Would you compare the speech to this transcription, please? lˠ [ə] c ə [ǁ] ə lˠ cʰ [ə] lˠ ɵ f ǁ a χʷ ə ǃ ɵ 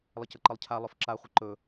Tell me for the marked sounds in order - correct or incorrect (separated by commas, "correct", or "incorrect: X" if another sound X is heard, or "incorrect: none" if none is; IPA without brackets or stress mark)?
correct, incorrect: ǃ, incorrect: a